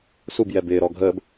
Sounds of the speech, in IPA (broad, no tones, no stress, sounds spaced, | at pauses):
s u b j ɛ b ɪː ɾ ɔ ɡʱ əː b